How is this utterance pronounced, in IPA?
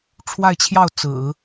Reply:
ʈ͡ʂʰ w a˥˧ ɪ̯ t͡ɕʰ j ɑ˥˩ ʊ̯ t͡s ɹ̩˨˩˦

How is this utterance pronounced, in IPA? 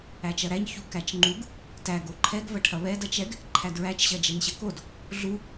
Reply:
æ t͡ʃ ɐ ɾ æ ɲ ç u k æ t͡ʃ ŋ͡ǃ u ɡ | t æ ɡ o ǃʰ ɛ ɡ v ɐ ʈʰ ɐ β ɛ d ɐ t͡ʃ ɛ ɡ | ǃʰ æ d ɹ æ t͡ʃ ɕ ɐ d͡ʒ ɛ n ɕ ɐ k o d | ɮ u

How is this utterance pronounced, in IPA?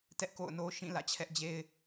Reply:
t ɛ˦ ʔ k o̰˦˨ ʊ̯ n o˦ ʃ ĩ˦˨ l ä̰˦˨ t͡ɕʰ ɛ˦ ʔ d͡ʑ e˦ ɪ̯

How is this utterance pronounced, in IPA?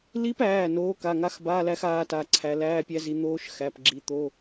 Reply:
l i˦˥ p æː˩˧˩ n oː˨˦ k a˩˧˩ ŋ a˧˥˧ x b aː˧˥˧ l æ˦˥ x aː˦˥ t a˩˧˩ ǀʰ æ˨˦ l æː˧˥˧ pʲ æ˦˥ z i˨˦ n̪ oː˦˥ ʃ x æ˩˧˩ p ɡ͡ǁ i˨˦ t̪ o˧˥˧

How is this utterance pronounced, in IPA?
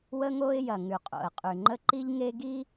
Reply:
w ə˦ ŋ o˦ ɪ̯ j ɐ˨ ŋ ʉ˨ qʼ o̰˨ ə̯ qʼ ʉ˨ ŋ͡ǃ ə˦ ǃ i˦ ʎ ŋ e˦ ɡ i˦

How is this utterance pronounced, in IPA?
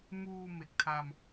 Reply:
m uː˧ m e˨˩ k̚ tʰ a˧ m

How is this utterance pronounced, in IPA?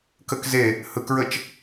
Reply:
k ə k z e | h ɯ k ɹ ə t͡ʃ

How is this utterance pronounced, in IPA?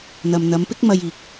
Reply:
n̪ ɐ˨ m n̪ ɐ˨˧ m p ɪ˥ k̚ m ɐ˧ j iː˨ k̚

